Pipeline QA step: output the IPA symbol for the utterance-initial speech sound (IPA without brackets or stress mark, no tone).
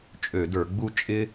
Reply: t͡ʃʼ